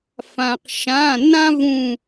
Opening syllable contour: low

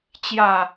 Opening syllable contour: low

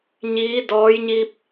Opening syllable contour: rising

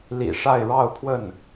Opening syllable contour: low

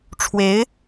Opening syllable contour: rising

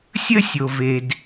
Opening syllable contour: high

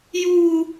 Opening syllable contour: high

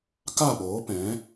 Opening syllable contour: falling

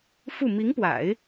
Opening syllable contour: falling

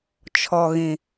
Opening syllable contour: low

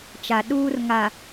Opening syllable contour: low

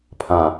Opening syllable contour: low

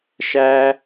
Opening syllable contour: high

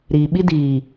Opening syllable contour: low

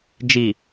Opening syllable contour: low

